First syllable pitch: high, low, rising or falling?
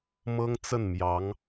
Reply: high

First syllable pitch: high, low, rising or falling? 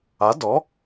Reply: rising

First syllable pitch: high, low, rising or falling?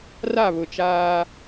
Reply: falling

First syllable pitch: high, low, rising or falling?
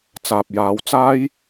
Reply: low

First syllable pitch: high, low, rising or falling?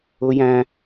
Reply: high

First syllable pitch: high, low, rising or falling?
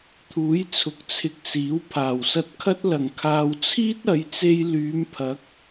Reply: rising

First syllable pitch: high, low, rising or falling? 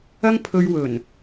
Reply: high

